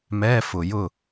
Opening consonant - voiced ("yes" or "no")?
yes